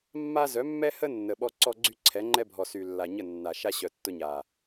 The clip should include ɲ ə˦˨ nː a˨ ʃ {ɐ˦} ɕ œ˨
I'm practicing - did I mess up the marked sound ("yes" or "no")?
yes